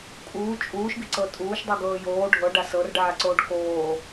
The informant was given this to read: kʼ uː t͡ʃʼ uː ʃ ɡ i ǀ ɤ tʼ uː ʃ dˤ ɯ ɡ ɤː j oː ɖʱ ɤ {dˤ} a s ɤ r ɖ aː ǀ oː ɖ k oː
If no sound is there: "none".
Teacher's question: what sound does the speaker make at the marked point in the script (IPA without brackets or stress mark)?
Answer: ɖ